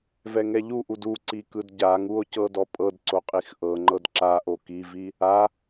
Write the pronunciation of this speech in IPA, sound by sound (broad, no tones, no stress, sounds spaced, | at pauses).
v ɛ ŋ ɛ ʎ u ʔ u d u ǀ i k ɯ d ɟ a ŋ u o̯ c ɤ d ɔ pʼ ɤ d ǀ o qʼ i x ʔ ɤ ŋ͡ǃ ɤ d ǁ a ʔ o k i v i | a